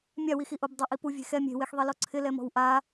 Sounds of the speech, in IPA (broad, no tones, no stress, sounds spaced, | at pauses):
mʲ a w i x i ʔ o b dˤ a ʔ i p u vʲ e̤ x ɛ mʲ e̤ w e x ðˤ i l ɔ ǀʰ ɪ l ɛ m ɔ̤ w ʔ a